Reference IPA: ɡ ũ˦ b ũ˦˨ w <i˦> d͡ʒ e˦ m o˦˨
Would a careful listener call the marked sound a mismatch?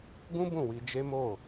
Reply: yes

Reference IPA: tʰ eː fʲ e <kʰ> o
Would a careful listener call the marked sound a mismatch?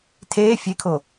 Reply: no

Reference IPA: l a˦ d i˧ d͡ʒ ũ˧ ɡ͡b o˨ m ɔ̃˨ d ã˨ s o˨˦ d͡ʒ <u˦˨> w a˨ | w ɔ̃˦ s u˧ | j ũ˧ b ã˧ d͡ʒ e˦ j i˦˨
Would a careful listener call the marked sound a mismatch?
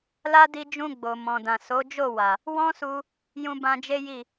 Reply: yes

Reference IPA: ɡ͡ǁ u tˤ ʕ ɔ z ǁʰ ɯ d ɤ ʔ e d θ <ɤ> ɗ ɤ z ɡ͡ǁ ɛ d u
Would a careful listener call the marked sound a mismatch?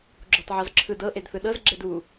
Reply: yes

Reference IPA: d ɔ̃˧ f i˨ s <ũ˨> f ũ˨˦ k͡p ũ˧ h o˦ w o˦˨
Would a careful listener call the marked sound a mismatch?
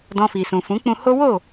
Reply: no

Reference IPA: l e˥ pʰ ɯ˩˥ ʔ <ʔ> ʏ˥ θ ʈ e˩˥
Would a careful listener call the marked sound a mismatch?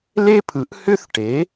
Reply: yes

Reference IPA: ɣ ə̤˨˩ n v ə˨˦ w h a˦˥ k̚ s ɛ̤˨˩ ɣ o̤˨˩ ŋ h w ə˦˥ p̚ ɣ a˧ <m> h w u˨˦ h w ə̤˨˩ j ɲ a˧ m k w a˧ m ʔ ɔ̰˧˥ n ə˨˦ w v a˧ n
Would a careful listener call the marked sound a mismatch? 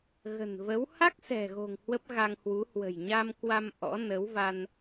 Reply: yes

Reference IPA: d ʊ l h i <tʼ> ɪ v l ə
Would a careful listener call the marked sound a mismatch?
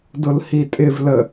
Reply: no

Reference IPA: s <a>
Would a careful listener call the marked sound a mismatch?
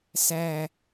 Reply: yes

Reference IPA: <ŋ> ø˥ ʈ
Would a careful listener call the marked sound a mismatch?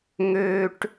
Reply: no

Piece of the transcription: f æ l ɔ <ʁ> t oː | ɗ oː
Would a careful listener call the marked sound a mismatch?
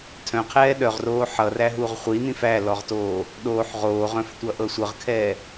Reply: no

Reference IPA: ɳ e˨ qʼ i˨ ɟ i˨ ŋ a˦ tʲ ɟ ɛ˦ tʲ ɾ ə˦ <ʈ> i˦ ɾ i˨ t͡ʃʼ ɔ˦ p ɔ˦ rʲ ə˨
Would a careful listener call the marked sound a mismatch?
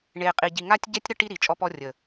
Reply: no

